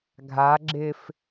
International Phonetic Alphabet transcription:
ɡʱ a ɡ͡ǁ ɪ f

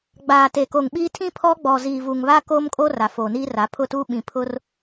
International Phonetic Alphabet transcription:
ɡ͡b aː˨ t e˨ k o˨ ŋ ɓ iː˦ tʰ ĩ˦ pʰ ɔ˦ ɡ͡b ɔ˨ z iː˨ v u˨ ŋ β a˦ k oː˦ m kʼ o˦ r a˨ f oː˨ n iː˦ r a˨˦ pʰ ʊ˦˨ t uː˦ ɓ ĩ˨ pʰ ʊ˦ r

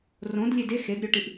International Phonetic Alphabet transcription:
r õ d lʲ e d e x e d ɾʲ o ʈ i ʔ

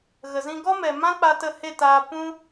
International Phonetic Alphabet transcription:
ɣ ə˨ z ĩ˧ ɡ ɔ˦ m ɛ˨ m ã˦ k͡p a˧ t ə˦˨ h e˦˨ t aː˧ p ũ˦

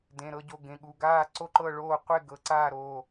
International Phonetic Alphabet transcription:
d ẽ˩˧˩ ɾ ɤ˥˨ ɟ o˩˧˩ ɡ ẽ˩˧˩ ɠ u˩˧˩ ɡ aː˥˨ ǀ o˥˨ ǃ ɤ˥˨ ɭ oː˥˨ qʷ e˥˨ ɡ ɤ˩˧˩ ǀ aː˥˨ ɾ oː˩˧˩

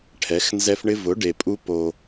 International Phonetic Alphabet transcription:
ʈʰ ɛ˨˦ x n z ɛ˦ f ɳ ɪ˦ v ʊ˨˦ ɖ e˨ pʼ u˦ p o˦

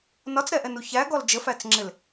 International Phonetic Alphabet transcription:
n ɒ t͡s ɾ ɛ ʔ ɛ n u ç æ ɡ ɔ l d͡ʒ ə f æ t͡s ŋ͡ǁ ɪ l

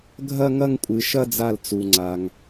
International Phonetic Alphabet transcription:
ɡʱ ɐ˥˧ ŋ ɐ˥˧ ŋ kʷʼ ɨ˩ ʃ ɐ˥˧ d͡z a˧˩ l t͡s u˩ ŋ͡ǀ a˩ ŋ

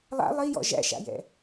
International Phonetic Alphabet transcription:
lˠ a̰ lˠ i j ɔ̰ ʒ æ̰ ʃ a̰ j ɛ̰

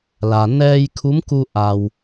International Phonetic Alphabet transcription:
l a˩ n ɛː˧ j kʰ u˧˥ m k u˧ ʔ a˩ w

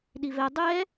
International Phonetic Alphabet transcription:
ɗ i v ɛ dˤ ɛ

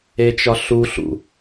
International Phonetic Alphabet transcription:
e t͡ʃ ɒ ɬ u ɬ ṵ

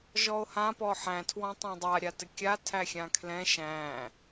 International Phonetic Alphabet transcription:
ʒ ɔ o̯ h ã p ɔ ħ æ̃ tʰ w ɔ̃ tˤ æ̃ dˤ a ɾʲ a t ɘ kʲ a tʰ æ xʲ ã kʰ l ɛ̃ ʃ æ̃

